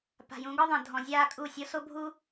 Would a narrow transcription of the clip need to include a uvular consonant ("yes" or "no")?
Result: no